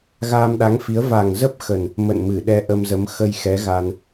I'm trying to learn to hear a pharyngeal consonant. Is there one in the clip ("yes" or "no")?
no